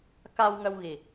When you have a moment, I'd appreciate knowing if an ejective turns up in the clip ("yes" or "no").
no